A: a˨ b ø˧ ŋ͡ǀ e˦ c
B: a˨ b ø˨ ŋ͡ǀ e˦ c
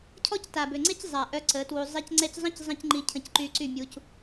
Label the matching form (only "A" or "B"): B